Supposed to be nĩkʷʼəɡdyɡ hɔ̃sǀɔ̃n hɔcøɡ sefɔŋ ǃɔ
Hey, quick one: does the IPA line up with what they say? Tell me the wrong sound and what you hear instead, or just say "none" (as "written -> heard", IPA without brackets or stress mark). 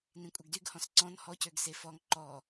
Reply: none